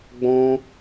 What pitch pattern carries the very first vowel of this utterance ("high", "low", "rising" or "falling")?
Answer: high